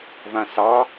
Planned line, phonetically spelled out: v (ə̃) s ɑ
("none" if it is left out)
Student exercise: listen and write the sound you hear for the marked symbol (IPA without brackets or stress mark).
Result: ã